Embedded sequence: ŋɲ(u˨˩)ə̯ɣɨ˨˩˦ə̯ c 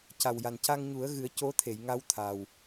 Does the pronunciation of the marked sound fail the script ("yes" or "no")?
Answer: yes